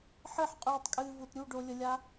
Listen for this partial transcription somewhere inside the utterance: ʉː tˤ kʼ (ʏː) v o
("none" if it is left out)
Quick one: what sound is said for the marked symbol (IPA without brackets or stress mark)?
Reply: ɨː